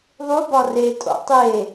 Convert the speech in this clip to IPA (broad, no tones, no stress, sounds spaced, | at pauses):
ðˤ u b ɒ r e tʼ o̰ tˤ e